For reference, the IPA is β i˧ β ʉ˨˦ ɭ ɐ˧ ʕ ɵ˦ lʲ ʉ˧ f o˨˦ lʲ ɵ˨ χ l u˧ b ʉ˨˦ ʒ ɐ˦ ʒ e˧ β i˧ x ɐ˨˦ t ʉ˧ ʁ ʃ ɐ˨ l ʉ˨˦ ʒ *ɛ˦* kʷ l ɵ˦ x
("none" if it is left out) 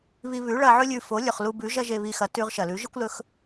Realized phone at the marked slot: ɨ˦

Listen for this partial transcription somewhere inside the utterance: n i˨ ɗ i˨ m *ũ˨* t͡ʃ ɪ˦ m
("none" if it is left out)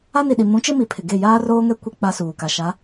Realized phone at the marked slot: ũ˨˦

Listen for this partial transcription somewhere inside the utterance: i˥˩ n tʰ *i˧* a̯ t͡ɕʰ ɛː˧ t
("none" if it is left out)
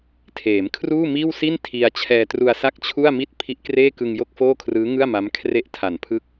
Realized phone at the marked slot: i˧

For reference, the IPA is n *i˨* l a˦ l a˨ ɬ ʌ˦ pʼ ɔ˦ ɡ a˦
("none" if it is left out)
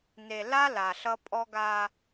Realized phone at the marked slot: e˨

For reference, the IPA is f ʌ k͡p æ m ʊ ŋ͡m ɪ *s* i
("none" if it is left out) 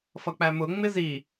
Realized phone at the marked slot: z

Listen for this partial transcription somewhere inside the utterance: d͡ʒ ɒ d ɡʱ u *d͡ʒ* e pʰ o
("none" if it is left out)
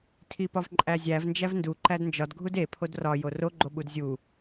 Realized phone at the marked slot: d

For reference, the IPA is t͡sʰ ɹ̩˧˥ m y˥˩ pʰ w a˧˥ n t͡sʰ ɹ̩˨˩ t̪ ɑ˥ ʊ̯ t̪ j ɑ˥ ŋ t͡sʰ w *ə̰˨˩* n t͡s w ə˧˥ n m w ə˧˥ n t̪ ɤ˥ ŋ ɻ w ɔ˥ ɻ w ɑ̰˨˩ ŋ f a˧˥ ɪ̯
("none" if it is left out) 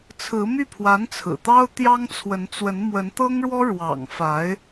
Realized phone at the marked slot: ə˧˥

